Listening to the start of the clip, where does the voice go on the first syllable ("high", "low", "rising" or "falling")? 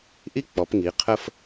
high